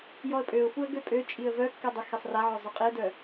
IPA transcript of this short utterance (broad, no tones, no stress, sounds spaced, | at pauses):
j ɔ ə̯ pʼ ø ʊ̯ f u ə̯ ɡ ø pʼ ø t͡ʃʼ i ə̯ v œ kː ɛ dˤ y x e sˤ r a ʕ ø zˤ œ qʼ i ə̯ d œ